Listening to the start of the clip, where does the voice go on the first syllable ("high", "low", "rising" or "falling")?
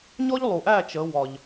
high